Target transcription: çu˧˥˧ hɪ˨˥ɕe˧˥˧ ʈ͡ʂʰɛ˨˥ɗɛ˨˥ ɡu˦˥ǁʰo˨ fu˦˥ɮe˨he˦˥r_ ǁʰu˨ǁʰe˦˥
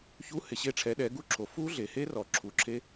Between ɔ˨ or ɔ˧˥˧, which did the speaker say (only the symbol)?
ɔ˨